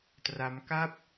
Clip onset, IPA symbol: t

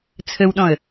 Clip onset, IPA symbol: t͡sʰ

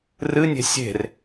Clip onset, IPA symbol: r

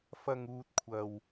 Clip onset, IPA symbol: f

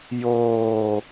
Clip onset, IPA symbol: j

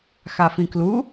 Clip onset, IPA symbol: x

